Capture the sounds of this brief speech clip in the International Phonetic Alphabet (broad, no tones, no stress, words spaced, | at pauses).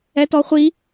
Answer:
ɛtɔχʷi